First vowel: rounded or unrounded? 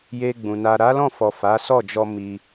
unrounded